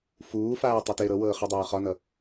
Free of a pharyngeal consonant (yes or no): yes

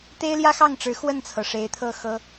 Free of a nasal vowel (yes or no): yes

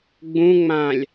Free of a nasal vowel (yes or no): no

